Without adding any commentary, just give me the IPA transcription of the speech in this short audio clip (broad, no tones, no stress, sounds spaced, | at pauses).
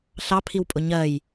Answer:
ɬ ɑ pʰ i w pʼ ʊ ɲ ɜ j